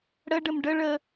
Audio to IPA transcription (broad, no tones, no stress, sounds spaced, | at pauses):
ɽ ə ɖ ə m ɖ ə ɭ ə